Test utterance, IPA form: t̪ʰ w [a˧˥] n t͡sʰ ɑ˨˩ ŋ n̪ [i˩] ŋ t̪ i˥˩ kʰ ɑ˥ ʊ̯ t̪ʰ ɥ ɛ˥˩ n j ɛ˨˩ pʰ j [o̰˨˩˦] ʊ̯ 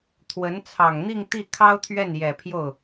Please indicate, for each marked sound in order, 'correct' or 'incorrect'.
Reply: incorrect: ə˧˥, incorrect: i˥˧, incorrect: o˥˩

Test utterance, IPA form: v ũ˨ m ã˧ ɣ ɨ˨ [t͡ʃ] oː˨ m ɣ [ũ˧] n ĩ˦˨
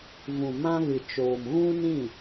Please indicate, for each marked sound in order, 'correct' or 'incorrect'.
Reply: correct, incorrect: ũ˦

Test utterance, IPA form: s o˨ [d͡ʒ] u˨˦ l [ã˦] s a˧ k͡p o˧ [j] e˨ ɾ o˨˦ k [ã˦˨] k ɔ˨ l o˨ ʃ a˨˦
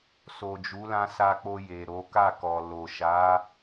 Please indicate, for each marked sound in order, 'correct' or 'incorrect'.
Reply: correct, incorrect: ã˧, correct, incorrect: a˦˨

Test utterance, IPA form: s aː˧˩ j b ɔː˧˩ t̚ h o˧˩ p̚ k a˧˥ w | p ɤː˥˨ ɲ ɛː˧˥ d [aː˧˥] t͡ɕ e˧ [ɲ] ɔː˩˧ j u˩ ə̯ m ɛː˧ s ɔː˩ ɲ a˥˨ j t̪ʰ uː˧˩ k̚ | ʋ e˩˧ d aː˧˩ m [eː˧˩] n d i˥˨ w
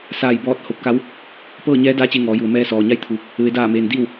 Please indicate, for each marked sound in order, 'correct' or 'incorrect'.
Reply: correct, incorrect: ŋ, incorrect: eː˩

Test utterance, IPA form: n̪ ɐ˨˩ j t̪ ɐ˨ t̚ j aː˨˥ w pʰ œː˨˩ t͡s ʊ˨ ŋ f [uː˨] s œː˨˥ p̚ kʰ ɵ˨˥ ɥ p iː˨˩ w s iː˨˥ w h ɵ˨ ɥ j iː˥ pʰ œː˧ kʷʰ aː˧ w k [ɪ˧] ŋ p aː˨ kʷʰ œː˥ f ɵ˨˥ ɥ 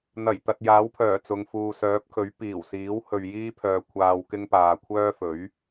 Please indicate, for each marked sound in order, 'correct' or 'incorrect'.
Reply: correct, incorrect: ɪ˥

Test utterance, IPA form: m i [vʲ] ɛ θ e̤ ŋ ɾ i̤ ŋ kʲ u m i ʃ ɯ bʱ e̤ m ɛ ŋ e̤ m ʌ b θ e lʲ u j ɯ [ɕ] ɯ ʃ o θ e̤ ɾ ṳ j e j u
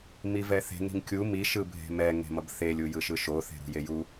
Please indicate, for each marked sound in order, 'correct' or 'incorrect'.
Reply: incorrect: v, incorrect: ʃ

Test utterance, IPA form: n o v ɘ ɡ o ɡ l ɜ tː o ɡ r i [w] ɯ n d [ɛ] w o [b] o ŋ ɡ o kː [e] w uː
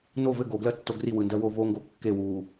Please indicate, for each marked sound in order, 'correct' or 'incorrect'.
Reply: correct, incorrect: ɜ, incorrect: v, correct

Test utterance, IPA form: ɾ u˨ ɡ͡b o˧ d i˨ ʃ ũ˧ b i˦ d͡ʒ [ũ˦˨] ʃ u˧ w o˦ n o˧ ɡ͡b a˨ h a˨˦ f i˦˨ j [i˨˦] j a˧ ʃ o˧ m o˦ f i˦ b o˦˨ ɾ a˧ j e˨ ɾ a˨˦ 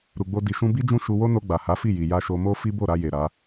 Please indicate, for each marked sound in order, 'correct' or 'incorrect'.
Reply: correct, incorrect: i˨

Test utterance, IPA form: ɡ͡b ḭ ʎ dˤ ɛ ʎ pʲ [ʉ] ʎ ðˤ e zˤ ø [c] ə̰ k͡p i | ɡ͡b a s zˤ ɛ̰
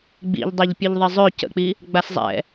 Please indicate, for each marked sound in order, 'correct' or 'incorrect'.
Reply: correct, correct

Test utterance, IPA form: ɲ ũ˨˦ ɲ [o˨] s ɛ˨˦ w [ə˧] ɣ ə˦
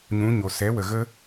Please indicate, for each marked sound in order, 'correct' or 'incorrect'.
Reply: correct, incorrect: ə˨

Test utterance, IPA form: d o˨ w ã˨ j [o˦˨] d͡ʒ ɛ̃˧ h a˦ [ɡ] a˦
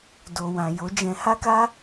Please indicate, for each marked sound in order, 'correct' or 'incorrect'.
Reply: incorrect: o˨˦, incorrect: k

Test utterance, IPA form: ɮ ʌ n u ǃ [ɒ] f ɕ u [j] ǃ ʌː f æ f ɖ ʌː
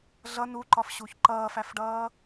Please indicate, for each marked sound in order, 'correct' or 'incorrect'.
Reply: correct, incorrect: ç

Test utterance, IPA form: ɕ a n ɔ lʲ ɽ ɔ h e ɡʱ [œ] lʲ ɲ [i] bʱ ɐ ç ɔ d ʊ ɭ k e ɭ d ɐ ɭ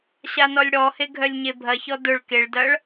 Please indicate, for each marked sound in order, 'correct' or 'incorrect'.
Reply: correct, incorrect: e

